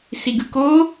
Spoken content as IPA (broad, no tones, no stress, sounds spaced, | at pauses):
s i ɡ ɯ k o